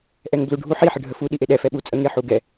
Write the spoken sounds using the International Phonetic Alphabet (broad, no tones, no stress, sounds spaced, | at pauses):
ʔ ɛ ŋ b l u ɖʱ u ħ i ħ ə ɖʱ ə f u ɗ i ʔ e ɗ ɛ f ɛ ɓ u t͡sʼ ə ŋ e ħ u ɡ ɛ